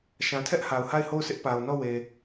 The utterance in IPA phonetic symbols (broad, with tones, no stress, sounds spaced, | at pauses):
ʃ ã˨ tʰ ɛ˦ ʔ h a˨ ʊ̯ h a˦˨ ɪ̯ h o˦˨ ʊ̯ sʰ ɪ˦ ʔ p a˨ ʊ̯ n ɔ˦˨ w e˨